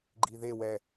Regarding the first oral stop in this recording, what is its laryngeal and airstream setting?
click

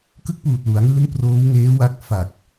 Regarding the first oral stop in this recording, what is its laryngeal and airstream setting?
plain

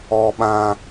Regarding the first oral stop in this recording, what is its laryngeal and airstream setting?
implosive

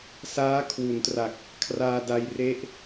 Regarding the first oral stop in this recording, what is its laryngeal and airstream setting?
aspirated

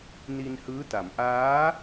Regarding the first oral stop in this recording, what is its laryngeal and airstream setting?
plain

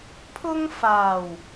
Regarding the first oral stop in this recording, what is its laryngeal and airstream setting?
aspirated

